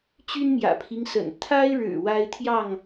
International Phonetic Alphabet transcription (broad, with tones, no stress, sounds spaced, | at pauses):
t͡ɕ y˦ n m j ä̰˨˩ pʰ i˦ ŋ s ə̰˨˩ n t̪ʰ a˦ ɪ̯ ɻ ɻ̩˨˩ w a˦ ɪ̯ t̪ʰ j ɑ˥˨ ŋ